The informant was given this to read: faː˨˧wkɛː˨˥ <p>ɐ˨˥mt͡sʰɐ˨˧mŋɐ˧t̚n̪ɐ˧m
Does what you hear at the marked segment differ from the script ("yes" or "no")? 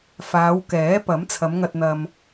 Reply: no